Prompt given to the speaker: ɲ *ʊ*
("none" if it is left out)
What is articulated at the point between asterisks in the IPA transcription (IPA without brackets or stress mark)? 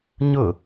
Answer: ʊ